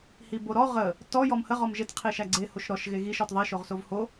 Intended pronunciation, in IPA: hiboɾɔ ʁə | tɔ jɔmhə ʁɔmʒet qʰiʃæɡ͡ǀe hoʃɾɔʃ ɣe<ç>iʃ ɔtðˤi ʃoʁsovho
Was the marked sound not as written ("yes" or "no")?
yes